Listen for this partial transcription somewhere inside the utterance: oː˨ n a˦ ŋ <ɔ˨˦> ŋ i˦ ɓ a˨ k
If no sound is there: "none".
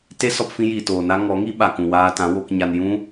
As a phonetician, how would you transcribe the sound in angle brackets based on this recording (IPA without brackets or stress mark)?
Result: ɔ˨˦